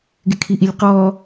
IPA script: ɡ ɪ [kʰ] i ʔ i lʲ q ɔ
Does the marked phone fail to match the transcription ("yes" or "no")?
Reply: no